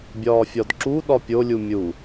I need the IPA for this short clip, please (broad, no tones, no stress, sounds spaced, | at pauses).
bʲ ɒː fʲ ɒ d ǁ u ɗ ɒ pʲ o lʲ u mʲ u